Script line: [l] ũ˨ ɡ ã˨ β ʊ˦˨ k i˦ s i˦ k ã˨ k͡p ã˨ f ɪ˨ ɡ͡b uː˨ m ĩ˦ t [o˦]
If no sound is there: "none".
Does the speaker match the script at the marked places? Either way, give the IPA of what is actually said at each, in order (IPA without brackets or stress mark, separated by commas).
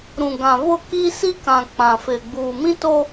ɾ, o˦